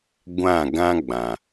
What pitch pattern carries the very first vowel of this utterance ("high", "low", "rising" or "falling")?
falling